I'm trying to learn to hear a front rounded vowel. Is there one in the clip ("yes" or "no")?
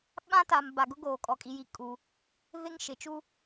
no